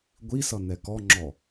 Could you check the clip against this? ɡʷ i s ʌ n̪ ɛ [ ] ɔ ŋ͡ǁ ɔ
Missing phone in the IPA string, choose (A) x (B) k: B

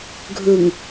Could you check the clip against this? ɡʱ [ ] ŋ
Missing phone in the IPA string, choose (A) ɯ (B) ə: A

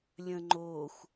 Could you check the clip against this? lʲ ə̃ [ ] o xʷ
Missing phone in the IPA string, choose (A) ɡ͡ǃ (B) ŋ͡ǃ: B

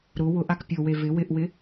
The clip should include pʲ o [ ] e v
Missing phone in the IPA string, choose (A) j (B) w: B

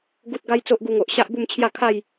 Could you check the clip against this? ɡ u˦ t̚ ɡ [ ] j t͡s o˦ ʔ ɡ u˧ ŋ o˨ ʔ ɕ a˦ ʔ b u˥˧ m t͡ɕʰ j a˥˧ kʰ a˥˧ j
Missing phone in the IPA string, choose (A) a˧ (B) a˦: B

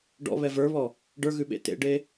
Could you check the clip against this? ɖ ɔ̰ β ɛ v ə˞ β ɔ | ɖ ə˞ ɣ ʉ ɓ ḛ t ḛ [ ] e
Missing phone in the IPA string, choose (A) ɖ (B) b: A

